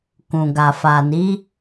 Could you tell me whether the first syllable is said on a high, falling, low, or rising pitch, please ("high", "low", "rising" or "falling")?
low